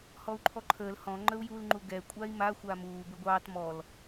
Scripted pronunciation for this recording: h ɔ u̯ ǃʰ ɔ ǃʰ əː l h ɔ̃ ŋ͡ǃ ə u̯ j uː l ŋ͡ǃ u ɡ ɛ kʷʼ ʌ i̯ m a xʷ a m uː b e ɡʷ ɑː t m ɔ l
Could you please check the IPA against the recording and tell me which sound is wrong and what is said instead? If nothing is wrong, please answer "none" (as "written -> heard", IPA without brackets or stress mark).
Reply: ʌ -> a